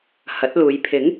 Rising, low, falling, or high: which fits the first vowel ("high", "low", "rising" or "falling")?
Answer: rising